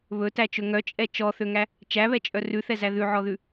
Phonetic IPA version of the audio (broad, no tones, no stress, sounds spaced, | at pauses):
β ɵ t æ t͡ʃ ɵ ŋ œ t͡ʃʼ ɛ t͡ʃ ɔ θ ø ŋ æ | t͡ʃ æ β ɛ t͡ʃʼ œ r ʉ θ ɛ z æ ð ʉ ʕ ɔ ð ʉ